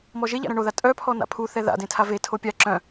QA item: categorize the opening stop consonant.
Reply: ejective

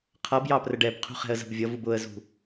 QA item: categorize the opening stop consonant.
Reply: aspirated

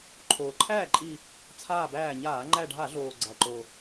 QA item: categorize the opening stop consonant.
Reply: click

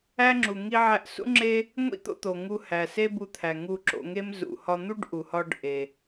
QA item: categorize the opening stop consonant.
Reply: click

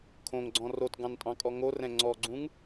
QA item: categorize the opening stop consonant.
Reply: aspirated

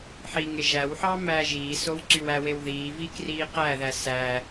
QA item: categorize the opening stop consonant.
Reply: click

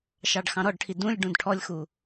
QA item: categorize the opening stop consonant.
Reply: plain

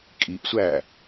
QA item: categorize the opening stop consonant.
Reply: ejective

